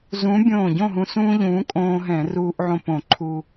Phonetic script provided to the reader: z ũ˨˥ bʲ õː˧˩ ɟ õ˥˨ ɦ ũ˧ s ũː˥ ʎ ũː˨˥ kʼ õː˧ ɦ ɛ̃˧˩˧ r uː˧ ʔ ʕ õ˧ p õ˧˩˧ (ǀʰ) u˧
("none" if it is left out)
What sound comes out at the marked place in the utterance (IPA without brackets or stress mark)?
ǃʰ